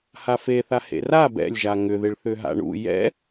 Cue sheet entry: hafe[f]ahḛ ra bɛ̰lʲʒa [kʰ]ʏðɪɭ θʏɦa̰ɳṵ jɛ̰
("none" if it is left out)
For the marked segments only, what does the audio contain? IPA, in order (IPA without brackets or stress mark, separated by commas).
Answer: θ, ŋ